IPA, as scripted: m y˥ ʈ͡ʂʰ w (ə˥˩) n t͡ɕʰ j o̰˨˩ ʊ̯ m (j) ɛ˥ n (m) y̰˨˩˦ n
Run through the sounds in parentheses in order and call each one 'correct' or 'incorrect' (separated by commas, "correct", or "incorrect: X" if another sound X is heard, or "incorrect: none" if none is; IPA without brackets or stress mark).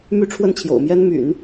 correct, correct, correct